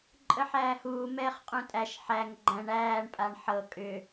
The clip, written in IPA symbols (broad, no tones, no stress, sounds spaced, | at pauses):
ǃʼ ə ħ æː h uː m ɛː χ qʼ ũ tʼ æ ʃ ħ æ ŋ ɡ͡ǃ æ̃ ɳ æː ɳ pʼ a ɳ ħ ɤ kʼ ʏ